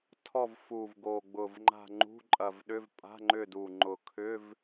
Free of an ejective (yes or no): no